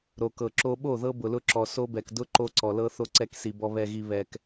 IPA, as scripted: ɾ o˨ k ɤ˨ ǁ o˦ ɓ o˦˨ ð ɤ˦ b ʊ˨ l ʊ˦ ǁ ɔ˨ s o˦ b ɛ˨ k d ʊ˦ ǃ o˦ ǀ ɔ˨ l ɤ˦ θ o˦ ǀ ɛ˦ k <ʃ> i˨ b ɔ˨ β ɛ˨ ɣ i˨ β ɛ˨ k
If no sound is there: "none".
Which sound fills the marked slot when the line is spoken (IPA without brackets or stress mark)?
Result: s